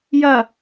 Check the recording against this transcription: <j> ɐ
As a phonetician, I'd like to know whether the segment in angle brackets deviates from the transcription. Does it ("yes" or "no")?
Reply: no